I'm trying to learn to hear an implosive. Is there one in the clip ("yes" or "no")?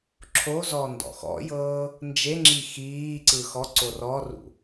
no